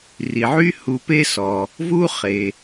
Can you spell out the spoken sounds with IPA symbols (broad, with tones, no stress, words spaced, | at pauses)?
ri˩ʕy˥ hu˧pe˥sɔ˩ | vu˥χe˩